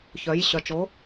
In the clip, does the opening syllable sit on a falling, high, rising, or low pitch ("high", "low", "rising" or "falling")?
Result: rising